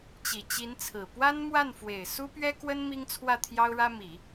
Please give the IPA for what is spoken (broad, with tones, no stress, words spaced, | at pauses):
t͡ɕi˨˩t͡ɕi˧˥nt͡sʰɹ̩˨˩ pwa˥nmwa˥˩nfwe˨˩ɪ̯ su˥pɥɛ˥kwə˥n mi˥ŋt͡sʰwä˥˩ t̪ʰjɑ˥ʊ̯ɻä˥ mi˨˩˦